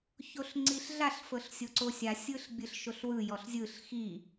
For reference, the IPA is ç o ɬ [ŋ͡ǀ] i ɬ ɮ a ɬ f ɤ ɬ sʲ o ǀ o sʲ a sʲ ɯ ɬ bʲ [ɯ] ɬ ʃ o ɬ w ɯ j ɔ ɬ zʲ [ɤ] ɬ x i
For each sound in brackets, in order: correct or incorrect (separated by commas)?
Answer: correct, correct, incorrect